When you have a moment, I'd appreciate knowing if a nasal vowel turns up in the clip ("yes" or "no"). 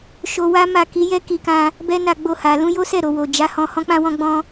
yes